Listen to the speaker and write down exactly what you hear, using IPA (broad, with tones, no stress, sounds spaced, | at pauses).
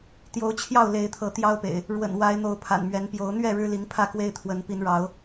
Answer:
t̪ j o˨˦ ʊ̯ t͡ɕʰ j ɑ˥˨ ʊ̯ l e˨˦ ɪ̯ t̪ʰ ɤ˨˦ t̪ j ɑ˦ ʊ̯ p ḛ˨˩ ɪ̯ | ɻ w ə̰˨˩ n w a˨˦ ɪ̯ n̪ o˨˦ ʊ̯ pʰ a̰˨˩ n m ɥ ɛ˨˦ n p j o˨˦ ʊ̯ n̪ ɥ ɛ˥˨ ɻ ɻ̩˦ l i˨˦ ŋ pʰ ä˥˨ k w e˦ ɪ̯ t̪ʰ w ə˨˦ n p i˨˦ n ɻ ɑ˨˦ ʊ̯